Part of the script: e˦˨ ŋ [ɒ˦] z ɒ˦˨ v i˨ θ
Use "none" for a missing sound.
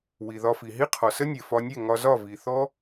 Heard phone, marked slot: ɒ˧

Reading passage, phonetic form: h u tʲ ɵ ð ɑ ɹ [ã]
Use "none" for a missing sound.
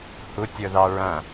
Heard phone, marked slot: ɐ̃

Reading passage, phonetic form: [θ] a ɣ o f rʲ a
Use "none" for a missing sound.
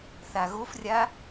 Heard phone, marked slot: θ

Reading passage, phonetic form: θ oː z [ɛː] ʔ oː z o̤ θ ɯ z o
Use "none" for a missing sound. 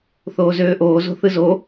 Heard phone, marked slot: øː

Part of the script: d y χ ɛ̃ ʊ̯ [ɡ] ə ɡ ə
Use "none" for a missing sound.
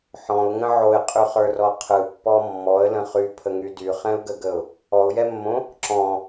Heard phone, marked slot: ɡ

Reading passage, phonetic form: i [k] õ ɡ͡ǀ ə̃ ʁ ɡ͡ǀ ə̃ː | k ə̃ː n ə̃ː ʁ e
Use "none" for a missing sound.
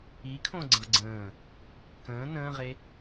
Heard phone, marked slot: kʰ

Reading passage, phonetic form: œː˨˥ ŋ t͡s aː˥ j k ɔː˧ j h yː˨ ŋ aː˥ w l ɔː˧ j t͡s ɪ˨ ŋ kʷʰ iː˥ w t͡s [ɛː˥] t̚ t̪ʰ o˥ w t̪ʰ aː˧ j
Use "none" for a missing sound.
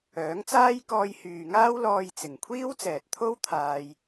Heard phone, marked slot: ɛː˨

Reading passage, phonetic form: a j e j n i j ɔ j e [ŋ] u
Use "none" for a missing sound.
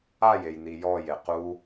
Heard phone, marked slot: q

